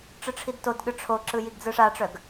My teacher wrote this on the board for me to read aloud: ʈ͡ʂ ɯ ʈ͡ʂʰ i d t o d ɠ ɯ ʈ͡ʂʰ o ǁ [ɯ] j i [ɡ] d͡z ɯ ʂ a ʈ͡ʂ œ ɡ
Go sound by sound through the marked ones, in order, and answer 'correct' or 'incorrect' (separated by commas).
correct, correct